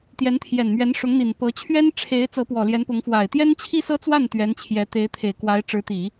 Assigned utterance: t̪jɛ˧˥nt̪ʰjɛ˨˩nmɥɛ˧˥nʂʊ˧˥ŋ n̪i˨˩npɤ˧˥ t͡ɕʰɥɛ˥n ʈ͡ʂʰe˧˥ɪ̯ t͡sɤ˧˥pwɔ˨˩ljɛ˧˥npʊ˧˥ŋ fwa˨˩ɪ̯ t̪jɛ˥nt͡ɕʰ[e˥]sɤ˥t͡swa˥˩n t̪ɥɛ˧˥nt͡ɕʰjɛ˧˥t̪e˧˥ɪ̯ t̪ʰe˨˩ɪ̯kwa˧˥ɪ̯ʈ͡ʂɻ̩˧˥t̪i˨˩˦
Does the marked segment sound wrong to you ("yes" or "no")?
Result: yes